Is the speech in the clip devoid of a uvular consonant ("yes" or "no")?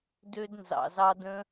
yes